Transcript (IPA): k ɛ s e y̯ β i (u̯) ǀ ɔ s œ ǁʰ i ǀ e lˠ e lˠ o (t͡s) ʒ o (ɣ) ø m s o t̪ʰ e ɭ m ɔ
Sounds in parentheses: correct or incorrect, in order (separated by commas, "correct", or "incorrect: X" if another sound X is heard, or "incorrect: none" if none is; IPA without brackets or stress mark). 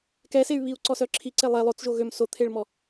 correct, correct, correct